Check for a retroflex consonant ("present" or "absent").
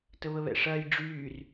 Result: present